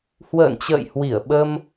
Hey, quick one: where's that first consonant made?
throat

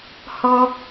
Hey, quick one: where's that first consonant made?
throat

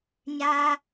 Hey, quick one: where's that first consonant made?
palate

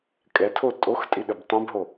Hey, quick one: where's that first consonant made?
velum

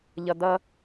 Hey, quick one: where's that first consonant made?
palate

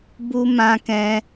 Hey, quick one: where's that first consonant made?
lips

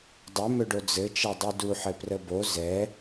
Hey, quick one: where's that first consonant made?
tongue tip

